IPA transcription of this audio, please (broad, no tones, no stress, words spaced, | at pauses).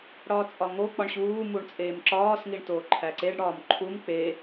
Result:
ɽɒːt͡sʼɒŋo k͡pɒɳɕuː muɳt͡sʼeːmǁɒːs ŋiɳtoːǃʰæǀeɖ ɽɒːmǃʰum k͡pe